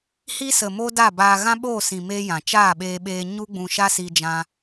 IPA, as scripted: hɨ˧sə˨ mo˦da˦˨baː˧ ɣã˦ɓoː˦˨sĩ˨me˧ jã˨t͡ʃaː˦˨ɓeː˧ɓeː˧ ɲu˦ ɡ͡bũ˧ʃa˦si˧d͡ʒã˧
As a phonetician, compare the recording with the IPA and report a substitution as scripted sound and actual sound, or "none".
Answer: ɨ˧ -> i˧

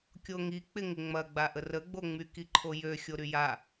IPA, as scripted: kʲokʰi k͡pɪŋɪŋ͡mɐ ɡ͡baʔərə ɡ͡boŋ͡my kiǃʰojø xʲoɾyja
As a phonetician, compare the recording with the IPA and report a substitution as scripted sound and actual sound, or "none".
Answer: kʰ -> ŋ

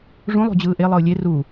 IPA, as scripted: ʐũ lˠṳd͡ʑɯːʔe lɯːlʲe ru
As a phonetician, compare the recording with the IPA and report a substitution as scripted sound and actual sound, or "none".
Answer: l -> lˠ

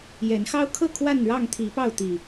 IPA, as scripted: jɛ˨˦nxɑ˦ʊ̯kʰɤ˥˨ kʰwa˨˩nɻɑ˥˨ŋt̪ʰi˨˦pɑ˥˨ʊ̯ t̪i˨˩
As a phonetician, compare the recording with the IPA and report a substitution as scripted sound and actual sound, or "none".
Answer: a˨˩ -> a˥˨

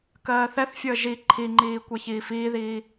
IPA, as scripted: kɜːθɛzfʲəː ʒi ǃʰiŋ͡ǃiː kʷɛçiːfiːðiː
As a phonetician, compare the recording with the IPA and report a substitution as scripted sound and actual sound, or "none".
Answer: z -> θ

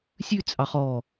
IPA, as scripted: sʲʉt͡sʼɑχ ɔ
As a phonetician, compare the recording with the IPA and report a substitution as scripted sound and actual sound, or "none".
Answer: none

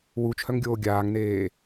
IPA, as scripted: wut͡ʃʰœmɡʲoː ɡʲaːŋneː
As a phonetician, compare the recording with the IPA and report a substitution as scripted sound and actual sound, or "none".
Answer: m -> ŋ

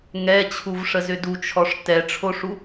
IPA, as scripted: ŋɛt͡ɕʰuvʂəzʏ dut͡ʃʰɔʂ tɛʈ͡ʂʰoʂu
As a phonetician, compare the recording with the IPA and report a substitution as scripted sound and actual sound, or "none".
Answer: none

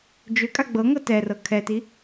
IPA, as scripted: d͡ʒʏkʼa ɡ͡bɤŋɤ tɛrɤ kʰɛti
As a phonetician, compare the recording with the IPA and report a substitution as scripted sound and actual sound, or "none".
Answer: none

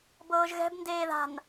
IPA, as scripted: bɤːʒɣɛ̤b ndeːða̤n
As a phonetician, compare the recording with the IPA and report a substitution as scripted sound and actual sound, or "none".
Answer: none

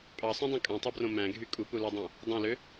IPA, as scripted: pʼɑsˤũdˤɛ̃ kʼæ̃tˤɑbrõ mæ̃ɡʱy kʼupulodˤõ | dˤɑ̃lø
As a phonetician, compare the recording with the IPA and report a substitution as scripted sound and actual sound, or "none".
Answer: ɛ̃ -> ẽ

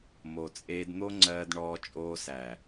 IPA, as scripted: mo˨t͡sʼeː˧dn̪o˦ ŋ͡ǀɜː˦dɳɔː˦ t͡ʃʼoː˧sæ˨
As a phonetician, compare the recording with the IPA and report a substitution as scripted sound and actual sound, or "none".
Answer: none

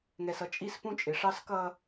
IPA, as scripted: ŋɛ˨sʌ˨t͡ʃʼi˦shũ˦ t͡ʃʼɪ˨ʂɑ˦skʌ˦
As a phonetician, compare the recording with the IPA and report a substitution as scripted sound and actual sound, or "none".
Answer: h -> p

